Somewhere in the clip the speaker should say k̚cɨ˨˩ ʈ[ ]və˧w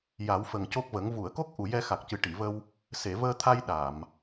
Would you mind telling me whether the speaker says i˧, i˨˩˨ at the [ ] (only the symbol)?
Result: i˨˩˨